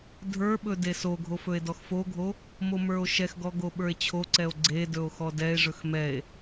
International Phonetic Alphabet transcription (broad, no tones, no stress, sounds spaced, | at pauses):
dʱ ə˞ ɓ ɵ d e s o ɡʱ o f ɵ e̯ d ɔ x f o ɡʱ o | m o m ə˞ o̯ ʃ ɛ x ɡ ɔ ɡ o ɓ ə˞ e̯ t͡ɕʰ o ǀ ɛ o̯ ɡ͡ǀ e d ɵ o̯ x ɔ d ɛ e̯ ʐ ɵ x m ɛ e̯